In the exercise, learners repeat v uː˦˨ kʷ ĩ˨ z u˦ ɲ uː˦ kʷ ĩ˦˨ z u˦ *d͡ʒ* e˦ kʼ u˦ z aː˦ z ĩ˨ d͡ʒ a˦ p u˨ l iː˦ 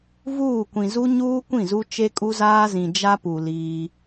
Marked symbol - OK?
no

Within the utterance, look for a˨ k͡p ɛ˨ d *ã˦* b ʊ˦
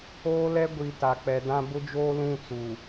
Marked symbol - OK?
yes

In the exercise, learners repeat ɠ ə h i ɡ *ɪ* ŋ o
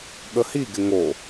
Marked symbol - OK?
yes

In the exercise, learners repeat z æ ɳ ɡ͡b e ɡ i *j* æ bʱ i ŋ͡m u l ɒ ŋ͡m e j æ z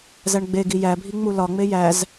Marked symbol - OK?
yes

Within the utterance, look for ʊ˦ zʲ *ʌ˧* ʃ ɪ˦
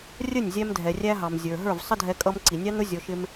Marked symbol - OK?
no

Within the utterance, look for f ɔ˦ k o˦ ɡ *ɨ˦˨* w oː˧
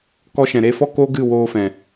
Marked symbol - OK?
yes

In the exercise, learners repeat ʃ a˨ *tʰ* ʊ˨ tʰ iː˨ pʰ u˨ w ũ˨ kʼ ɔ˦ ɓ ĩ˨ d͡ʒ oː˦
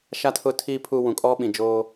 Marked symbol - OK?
yes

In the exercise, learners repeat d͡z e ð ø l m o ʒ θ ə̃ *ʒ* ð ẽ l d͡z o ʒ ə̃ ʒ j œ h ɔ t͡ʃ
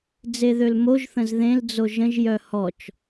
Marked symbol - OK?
no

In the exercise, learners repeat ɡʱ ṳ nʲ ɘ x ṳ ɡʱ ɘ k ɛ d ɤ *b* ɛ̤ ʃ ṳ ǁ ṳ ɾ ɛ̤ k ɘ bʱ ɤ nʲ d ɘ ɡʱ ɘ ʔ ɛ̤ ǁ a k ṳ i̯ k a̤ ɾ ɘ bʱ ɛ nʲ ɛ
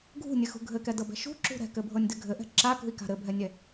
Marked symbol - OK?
yes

